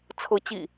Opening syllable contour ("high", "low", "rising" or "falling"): rising